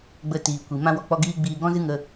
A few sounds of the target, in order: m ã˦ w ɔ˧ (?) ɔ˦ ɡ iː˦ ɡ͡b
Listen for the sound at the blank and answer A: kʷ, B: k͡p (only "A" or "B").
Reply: B